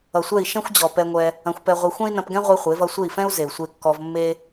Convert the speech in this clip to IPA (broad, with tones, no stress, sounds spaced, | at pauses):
ʌ˨ sʷ ɛ˦˨ i̯ ʃ ɛ̃˦ xʷ d͡ʑ ɔ˨ p ɛ˧ ŋʷ ɛ˧ | ɐ̃˧ xʷ p ɛ˧ ʁʷ e˧ xʷ ɛ̃˦ i̯ n ɐ̃˧ p ɡ ɛ̃˦ ʁʷ e˦ χʷ e˨˦ v ʌ˧ sʷ e˦˨ i̯ f ɛ̃˦ u̯ z e˨ u̯ sʷ e˧ kː ɔ˧ v mː e˦